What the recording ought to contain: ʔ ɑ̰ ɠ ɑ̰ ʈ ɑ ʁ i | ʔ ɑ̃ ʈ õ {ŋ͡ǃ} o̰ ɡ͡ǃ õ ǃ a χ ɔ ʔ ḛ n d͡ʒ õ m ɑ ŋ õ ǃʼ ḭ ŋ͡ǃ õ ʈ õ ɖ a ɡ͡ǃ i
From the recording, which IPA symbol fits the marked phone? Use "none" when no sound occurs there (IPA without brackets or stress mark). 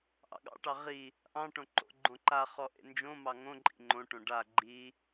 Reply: ǃ